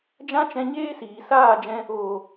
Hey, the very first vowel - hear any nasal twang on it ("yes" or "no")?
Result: yes